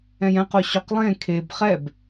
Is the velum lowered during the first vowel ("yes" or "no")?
yes